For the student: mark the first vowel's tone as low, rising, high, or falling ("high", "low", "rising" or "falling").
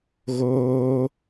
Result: high